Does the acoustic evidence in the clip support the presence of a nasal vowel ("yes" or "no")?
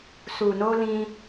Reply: yes